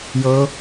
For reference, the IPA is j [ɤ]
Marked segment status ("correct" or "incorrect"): correct